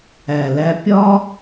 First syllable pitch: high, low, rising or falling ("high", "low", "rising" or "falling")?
low